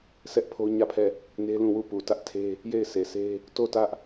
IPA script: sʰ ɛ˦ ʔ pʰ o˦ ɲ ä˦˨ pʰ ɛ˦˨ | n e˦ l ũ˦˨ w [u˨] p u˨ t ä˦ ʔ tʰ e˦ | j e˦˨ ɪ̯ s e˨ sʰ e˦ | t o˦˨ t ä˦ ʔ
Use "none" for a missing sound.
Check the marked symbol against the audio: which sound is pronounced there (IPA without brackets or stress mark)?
u˦˨